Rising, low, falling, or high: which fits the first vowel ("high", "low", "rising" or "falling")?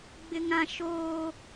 high